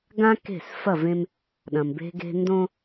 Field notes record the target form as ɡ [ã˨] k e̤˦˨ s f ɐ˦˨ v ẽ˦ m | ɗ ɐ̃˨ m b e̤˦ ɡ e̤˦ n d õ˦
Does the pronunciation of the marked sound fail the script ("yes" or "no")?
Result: yes